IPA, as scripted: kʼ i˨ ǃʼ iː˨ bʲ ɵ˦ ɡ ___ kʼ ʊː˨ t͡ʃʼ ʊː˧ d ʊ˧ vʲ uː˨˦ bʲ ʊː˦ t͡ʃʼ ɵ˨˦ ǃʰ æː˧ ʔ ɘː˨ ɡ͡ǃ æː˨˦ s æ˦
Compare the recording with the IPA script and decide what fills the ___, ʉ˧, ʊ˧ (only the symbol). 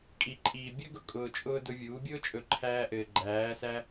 ʊ˧